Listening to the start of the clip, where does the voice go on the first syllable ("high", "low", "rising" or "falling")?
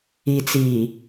low